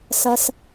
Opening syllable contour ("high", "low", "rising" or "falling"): low